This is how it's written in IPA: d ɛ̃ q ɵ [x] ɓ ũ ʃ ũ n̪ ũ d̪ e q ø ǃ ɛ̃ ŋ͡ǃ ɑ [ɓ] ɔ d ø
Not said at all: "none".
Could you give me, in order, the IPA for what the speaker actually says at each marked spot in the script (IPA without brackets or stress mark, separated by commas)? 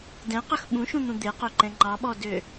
x, ɓ